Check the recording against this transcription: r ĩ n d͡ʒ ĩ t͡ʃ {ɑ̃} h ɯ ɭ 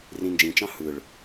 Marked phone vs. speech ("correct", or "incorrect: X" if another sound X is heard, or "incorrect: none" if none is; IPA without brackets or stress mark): correct